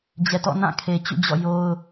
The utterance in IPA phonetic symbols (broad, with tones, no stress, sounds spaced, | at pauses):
d͡ʑ ɛ˨ t ɔ̰˦˨ n ã˦˨ kʰ e˨ t͡ɕ ṵ˦˨ d͡ʑ ɔ̰˦˨ j o˦ ʊ̯